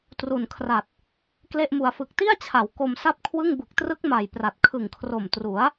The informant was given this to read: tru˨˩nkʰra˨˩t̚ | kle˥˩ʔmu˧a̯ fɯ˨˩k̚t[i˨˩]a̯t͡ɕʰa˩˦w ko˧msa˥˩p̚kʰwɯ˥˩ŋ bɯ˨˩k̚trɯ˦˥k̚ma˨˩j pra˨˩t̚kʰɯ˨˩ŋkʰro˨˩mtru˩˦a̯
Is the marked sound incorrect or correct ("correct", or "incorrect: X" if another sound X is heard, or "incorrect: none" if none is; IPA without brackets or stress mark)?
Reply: incorrect: i˥˩